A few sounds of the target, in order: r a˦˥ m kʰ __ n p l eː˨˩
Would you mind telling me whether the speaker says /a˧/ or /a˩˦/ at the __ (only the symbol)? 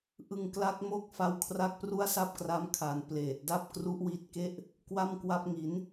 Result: a˩˦